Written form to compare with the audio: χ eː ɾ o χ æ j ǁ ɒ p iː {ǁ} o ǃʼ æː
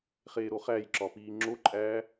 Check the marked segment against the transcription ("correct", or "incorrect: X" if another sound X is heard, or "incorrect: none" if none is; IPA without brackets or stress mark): incorrect: ŋ͡ǁ